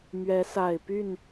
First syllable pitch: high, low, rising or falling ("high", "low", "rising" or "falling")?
rising